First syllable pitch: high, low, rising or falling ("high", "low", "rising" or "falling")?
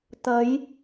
rising